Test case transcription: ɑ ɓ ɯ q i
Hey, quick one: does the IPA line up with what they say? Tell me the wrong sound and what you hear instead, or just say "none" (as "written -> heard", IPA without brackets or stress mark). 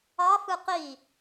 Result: ɓ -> f